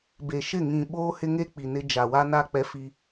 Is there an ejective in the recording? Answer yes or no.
no